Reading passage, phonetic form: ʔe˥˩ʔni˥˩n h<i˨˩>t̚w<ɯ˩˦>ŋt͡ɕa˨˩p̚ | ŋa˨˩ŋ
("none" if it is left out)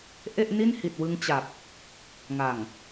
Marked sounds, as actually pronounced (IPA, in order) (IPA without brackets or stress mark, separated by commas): i˨˩, ɯ˧